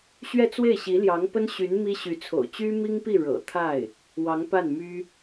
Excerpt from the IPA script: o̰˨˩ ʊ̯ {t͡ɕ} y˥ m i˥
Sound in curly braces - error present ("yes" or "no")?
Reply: no